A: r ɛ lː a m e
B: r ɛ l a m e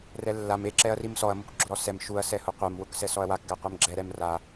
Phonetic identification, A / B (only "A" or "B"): A